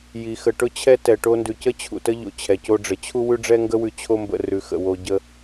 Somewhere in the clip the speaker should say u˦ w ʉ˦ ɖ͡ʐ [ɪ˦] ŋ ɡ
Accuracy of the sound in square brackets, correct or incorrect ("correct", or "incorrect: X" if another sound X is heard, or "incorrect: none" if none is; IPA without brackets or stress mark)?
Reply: incorrect: ɛ˦